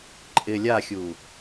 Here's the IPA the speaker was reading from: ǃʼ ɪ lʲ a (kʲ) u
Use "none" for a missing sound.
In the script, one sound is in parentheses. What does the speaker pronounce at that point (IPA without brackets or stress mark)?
xʲ